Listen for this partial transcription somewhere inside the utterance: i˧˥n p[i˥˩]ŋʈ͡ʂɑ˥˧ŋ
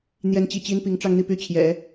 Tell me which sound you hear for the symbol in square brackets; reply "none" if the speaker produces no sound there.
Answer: i˧˥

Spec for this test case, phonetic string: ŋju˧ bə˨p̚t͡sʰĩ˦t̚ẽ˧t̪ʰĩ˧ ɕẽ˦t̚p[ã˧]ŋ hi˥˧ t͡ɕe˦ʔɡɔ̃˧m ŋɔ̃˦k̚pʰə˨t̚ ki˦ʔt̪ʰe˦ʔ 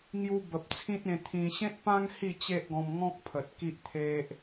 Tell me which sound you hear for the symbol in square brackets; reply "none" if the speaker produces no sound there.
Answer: ã˦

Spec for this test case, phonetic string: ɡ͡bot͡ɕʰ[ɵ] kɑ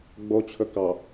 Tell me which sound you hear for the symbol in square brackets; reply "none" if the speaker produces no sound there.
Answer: ɵ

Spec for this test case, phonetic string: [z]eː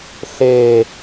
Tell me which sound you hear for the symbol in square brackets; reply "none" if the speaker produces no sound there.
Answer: ɬ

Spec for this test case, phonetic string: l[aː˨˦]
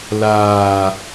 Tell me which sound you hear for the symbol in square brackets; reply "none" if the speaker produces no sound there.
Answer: aː˨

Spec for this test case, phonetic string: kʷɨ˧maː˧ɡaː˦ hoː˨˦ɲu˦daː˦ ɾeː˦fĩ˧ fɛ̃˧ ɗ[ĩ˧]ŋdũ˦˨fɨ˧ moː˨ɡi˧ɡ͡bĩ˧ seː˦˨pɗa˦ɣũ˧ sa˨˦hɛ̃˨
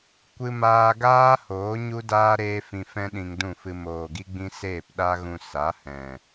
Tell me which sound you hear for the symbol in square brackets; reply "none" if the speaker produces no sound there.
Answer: ĩ˧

